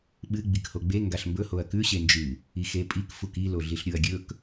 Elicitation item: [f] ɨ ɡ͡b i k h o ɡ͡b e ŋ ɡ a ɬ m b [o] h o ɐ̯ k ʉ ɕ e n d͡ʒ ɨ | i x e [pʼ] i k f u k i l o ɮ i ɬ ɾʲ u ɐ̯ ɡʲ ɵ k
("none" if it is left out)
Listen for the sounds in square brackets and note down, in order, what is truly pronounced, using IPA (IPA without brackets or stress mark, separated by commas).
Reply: ɓ, ɵ, pʼ